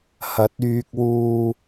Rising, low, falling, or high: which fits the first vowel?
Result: rising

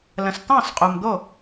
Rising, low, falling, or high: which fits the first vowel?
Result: low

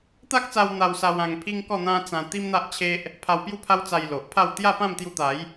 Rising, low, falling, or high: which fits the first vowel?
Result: high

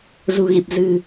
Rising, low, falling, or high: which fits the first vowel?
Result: low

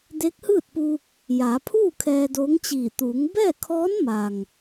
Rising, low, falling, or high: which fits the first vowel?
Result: rising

